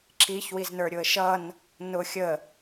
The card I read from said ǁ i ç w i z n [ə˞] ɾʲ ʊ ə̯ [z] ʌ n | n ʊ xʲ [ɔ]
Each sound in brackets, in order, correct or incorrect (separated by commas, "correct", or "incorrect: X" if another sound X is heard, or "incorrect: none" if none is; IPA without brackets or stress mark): correct, incorrect: ʃ, incorrect: ə